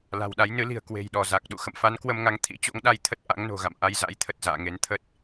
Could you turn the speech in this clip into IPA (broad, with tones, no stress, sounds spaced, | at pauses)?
l a̤˨˩ w ɗ a˨˦ j n ɨ˨˦ l i̤˨˩ ə̯ k w e̤˨˩ j ɗ ɔ˧˩ z a˨˩ k̚ ɗ ṵ˧˨ x ə̰˧˨ m f a˨˦ n k w ə˧ m ŋ a˨˦ ŋ t̪ʰ ḭ˧˥ t͡ɕ o̰˧˥ ŋ ɗ a˧ j t̪ʰ ə˦˥ t̚ ʔ a̰˧˥ ŋ n o̤˨˩ ɣ a̰˧˨ m ʔ a˧ j z a̰˧˥ j t̪ʰ ə˨˩ t̚ z a̰ː˧˨ ŋ e˨˦ n t̪ʰ ə˦˥ t̚